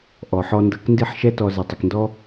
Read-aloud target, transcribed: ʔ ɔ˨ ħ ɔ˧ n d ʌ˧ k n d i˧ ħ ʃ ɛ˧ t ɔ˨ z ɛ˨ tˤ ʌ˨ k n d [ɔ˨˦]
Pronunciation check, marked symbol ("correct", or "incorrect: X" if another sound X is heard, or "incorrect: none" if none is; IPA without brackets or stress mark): incorrect: ɔ˦